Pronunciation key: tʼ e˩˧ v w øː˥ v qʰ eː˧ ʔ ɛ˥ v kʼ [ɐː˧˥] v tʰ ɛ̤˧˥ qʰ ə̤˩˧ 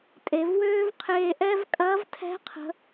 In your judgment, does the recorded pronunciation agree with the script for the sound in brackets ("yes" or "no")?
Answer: yes